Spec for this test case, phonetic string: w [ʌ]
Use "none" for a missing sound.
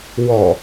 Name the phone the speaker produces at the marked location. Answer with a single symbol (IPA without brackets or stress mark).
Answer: ɔ